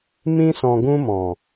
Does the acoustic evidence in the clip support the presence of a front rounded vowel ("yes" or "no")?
no